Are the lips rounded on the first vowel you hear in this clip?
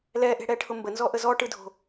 no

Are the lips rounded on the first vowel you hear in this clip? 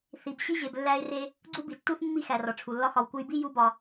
no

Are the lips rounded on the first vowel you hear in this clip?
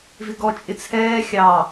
no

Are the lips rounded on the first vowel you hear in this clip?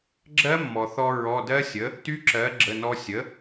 no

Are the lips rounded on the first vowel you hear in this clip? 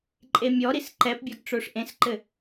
no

